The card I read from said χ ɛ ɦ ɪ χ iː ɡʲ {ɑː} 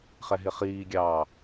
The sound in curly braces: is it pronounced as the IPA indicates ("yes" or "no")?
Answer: yes